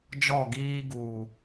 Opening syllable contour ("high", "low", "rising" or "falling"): falling